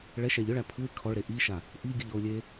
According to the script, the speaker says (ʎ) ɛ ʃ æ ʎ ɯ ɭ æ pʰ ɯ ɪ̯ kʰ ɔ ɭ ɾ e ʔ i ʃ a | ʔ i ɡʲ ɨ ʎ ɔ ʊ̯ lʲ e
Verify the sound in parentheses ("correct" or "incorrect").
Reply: incorrect